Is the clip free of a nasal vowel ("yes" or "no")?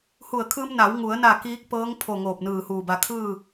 yes